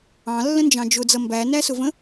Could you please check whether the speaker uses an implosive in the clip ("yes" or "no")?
no